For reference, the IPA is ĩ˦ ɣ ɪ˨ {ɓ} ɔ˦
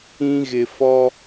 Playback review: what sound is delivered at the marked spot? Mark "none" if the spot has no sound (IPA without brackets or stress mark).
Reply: f